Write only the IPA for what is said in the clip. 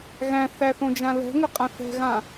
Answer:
ɣ æ̃ θ æ θ õ d͡ʒ ã l ɛ̤ ŋ ʏ qʼ ã θ ɛ̤ ɣ ã

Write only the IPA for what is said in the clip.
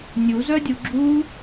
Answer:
nʲ u z œ dʲ u ɡ͡ǁ u

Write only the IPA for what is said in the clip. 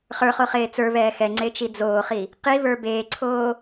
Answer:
χ ə˞ χ o χ eː t͡s ə˞ β ɛː x ɛ ŋ͡ǀ e t͡ʃ i d͡z oː χ i | q i β ə˞ b eː ǀʰ oː

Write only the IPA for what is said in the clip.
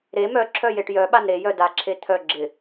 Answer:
ɾ e m œ ǁʰ œ j e ʈ j œ ɓ a n ɾ e j œ d a ǁʰ e t̪ʰ œ ɡ͡ǁ ɪ

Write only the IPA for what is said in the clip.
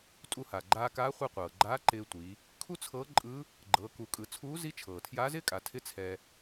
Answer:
tʼ u˧ h a˩ ɡ͡ǃ aː˧ k aː˧˥ χʷ ɨ˧ qʷ ɤː˩ ɡ͡ǃ aː˧˥ ǃ ɪː˧ tʷ i˩˧ | kʰ u˥ t͡sʰ ɤː˧˥ ǃʼ ɯ˧˥ | ɡ͡ǃ ɤː˩˧ k u˩˧ kʼ ɯ˩˧ t͡sʰ uː˧˥ z i˧˥ t͡ʃʰ ɤː˩ tʰ j aː˧˥ z ɪː˥ kʼ a˩˧ tʰ ɪ˥ t͡sʰ ɛ˧

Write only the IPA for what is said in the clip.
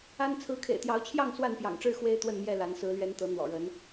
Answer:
a˦ n t͡sʰ ɹ̩˨˦ kʰ ḛ˨˩ ɪ̯ t̪ j ɑ˨˦ ʊ̯ t͡ɕʰ j ɑ˥˨ ŋ s w a˥˨ n p j ɑ̰˨˩ ŋ ʈ͡ʂ ɻ̩˥˨ x w e˦ ɪ̯ t̪ w ə˥˨ n m j ɛ˥˨ l a˨˦ n s ɹ̩˨˦ l ɥ ɛ˨˦ n t̪ ɤ˨˦ n̪ w ɔ̰˨˩ ɻ ə˨˦ n

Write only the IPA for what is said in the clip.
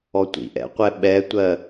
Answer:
ɔ tʷ ḭ ʔ ɛ̰ qʷ ɛ ɓ ɛ tʷ ɜ

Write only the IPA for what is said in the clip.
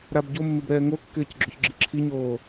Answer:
ɾ a b ɟ o mː ɪ b ɾ ɛː ŋ o kː ɪː c ɡ͡ǁ o ç ɡ͡ǁ i ǁʰ i ɲ oː

